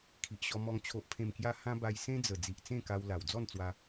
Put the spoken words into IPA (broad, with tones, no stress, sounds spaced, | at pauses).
kʰ i˨ ʔ ɕ ɔ˧ m ɔ˧ ŋ t͡ɕʰ o˨ ʔ pʰ ẽ˨˩ m k j a˧ h ã˦ b a˧ j s ẽ˦ d͡z ə˨˩ d͡z i˨ ʔ t͡s ẽ˥˧ k a˧ w l a˨˩ w d͡z ɔ˥˧ n t͡s w a˧